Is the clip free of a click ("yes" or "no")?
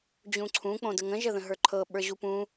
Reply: no